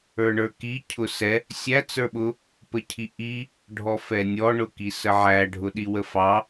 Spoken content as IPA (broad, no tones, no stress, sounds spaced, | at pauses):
ə˞ ɳ ə˞ k i cʰ ʊ s ɛ | sʲ æ t͡s ə˞ ɓ ʊ | p ə cʰ i ʔ i | ɖʱ ɔ f ɛ nʲ ɔ ɳ ʊ k i s ə ʕ æ ɖʱ ʊ ɗ i w ə f ɑ